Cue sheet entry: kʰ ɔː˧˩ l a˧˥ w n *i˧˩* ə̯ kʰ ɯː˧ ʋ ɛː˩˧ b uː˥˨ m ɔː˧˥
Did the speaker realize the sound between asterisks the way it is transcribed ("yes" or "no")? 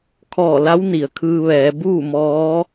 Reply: no